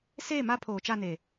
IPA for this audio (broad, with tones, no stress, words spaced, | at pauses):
seː˦˨ma˦ pʰoː˨t͡ʃa˦˨ne˨